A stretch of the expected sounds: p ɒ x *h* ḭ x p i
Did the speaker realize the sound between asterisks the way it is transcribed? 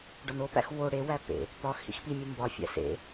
yes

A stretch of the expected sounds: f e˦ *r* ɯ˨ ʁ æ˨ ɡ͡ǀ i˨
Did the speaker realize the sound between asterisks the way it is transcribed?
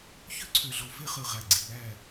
no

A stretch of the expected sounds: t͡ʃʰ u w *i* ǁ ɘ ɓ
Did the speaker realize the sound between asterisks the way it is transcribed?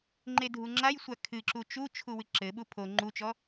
no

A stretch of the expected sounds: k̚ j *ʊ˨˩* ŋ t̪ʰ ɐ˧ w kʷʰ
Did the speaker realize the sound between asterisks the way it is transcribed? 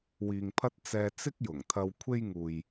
yes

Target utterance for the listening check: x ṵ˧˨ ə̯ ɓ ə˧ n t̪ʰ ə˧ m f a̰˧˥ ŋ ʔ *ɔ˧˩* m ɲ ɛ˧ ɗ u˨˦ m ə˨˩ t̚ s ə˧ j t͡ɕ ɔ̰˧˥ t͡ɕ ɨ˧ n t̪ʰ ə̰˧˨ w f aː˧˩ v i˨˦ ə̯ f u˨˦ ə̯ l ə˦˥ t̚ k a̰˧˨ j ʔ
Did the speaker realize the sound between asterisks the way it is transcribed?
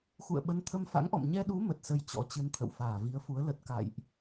no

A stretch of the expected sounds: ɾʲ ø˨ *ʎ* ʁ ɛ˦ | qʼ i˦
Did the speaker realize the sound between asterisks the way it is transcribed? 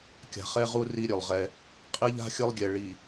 no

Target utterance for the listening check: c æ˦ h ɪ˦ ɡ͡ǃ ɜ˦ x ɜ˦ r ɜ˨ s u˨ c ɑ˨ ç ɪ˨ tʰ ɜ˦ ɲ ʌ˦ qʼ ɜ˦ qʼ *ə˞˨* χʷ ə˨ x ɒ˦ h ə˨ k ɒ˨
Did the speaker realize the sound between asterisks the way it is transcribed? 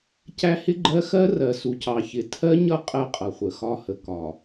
no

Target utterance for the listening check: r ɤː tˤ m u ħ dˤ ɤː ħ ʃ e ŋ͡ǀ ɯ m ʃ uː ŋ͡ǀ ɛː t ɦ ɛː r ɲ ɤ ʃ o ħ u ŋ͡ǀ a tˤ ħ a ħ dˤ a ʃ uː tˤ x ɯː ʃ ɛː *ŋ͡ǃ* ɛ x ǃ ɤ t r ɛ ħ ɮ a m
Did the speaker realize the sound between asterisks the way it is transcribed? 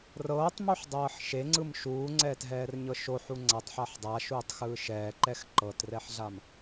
no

